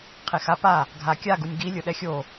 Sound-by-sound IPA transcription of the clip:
qʰ e x a p a | ɡʱ a kʲ a ɡ u nʲ ɡ i lʲ ʊ ɗ ɛ xʲ o

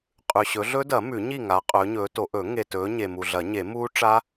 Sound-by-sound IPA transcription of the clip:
qʼ ʉ˨ ɕ ɵ˨˦ ɮ ɵ˦˥ d ɐ˨˩˦ m ʉ˨˩˦ ɲ i˥˨ ŋ a˨˦ qʼ ɵː˨˦ ɲ ɵː˨˦ t o˨˦ ʔ ɵ˨˩˦ ŋ e˨ t ɵː˨˦ ɲ e˨ m u˨ ɮ ɐ˨˩˦ ɲ e˨˩˦ m uː˦˥ ʈ͡ʂ a˦˥

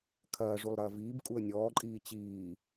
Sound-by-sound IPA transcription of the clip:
kʰ ɐː ʐ u lˠ ɾ ɐː v iː b kʼ u ə̯ nʲ ɔː ǃʼ iː t͡ɕ iː

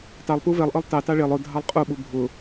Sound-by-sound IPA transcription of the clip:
t ɑ lˠ p u v ɛ lˠ ʔ ɤ lˠ t ɑ t ɑ ɭ e lˠ ʊ dʱ ɑ lˠ qʼ u ɓ u bʱ ʊ

